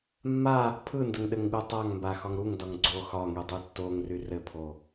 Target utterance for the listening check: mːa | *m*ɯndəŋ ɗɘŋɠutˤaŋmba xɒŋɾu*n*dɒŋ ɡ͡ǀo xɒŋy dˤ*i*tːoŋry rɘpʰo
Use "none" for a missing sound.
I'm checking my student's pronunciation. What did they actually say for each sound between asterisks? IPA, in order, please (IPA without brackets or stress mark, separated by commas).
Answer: pʰ, ŋ, y